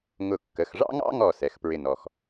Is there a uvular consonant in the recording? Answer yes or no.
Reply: no